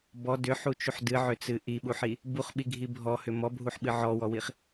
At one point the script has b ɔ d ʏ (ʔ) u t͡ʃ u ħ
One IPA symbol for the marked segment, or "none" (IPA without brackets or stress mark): ħ